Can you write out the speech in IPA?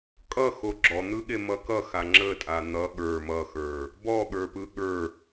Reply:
kʼʌxo ɡ͡ǁɔn̪ɯɠe mʌkʌxa ŋ͡ǁətʼa n̪ʌ ɠə˞ mʌxə˞ | bɔɠə˞pɯ ɠə˞

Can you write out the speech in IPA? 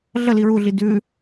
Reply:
ɮəli ɹuɮi dʉ

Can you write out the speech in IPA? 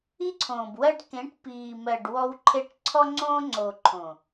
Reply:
i˦ǀʰõː˨bwɜ˦ɖ kẽ˨˦ʈ piː˨mɜ˨ɖ wɔ˦wǃʰe˦ʈ ǀʰɔ˦ŋ͡ǀõː˦ŋ͡ǀoː˨ ǃʰõ˨

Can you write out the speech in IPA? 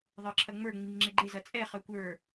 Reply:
ðˤə˞ǁʰɐŋ͡mə˞ ŋ͡miŋŋ͡ǁeɡ͡ǃe zɐt͡sʼɛ χœkʷə˞

